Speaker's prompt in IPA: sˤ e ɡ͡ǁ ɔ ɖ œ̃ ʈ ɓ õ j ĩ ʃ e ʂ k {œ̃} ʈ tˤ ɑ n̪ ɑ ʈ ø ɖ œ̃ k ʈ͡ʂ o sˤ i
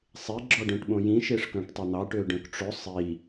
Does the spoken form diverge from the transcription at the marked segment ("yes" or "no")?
no